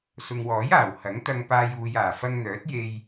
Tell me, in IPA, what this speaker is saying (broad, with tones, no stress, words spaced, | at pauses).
sʊ˨ŋwɔː˨˥jaː˨˩w hɐ˨˥ŋt̪ɐ˧ŋpaː˧j uː˨jaː˨˩ fɐ˧ŋn̪œː˨˥t̚je˧j